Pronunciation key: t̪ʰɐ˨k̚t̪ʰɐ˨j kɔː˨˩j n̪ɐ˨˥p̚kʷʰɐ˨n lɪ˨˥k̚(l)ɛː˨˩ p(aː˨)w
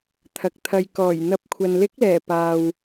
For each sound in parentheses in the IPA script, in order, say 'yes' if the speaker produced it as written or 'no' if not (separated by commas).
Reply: yes, yes